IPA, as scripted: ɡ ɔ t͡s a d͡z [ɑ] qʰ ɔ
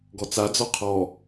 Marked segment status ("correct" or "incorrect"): incorrect